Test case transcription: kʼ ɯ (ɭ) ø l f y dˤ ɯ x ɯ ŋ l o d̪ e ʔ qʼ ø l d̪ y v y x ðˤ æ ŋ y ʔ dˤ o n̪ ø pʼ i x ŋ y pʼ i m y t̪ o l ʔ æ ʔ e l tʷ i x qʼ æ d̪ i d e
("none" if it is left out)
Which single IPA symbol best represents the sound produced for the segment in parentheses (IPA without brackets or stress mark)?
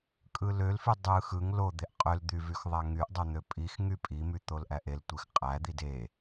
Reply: l